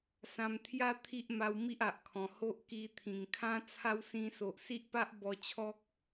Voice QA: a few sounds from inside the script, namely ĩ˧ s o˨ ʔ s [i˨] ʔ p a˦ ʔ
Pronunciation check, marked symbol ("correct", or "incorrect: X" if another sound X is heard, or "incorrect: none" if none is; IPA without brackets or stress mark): incorrect: i˦